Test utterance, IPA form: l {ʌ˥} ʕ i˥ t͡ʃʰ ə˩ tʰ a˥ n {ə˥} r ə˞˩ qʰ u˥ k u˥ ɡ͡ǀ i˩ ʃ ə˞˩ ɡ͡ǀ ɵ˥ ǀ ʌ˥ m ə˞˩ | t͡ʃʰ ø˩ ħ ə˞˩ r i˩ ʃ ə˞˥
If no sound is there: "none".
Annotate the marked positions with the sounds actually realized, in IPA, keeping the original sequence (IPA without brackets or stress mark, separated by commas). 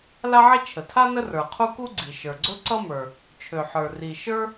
a˥, ə˥